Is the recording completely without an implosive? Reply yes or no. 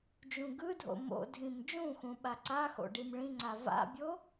no